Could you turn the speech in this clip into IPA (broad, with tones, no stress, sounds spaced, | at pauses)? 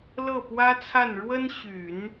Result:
l ɤ˥˩ p w ä˥ t͡sʰ a˥˩ n ɻ w ə˥ n ɕ y˨˩˦ n